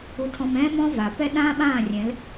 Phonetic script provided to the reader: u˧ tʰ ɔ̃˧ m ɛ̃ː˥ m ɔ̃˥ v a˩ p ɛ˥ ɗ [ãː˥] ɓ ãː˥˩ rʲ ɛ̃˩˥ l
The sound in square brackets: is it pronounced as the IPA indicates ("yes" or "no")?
yes